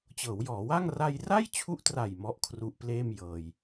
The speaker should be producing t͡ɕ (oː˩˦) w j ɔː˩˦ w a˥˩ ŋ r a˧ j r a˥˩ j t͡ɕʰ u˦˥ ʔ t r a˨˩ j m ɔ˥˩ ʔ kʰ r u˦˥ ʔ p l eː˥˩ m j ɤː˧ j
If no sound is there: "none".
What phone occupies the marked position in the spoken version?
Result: ɤː˩˦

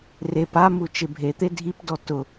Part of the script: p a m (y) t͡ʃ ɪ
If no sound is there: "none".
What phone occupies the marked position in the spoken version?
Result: u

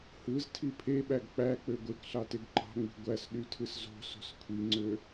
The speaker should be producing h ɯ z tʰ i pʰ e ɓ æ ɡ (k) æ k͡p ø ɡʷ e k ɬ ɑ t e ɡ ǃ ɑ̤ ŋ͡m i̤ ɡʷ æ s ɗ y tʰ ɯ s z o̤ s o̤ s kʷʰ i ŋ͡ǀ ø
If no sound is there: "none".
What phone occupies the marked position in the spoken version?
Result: k͡p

